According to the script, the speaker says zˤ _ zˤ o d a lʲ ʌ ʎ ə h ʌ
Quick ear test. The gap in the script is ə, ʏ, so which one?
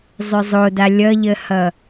ʏ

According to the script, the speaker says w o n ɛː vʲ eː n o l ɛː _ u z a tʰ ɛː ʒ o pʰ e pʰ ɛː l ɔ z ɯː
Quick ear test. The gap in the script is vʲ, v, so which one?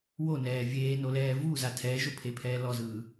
v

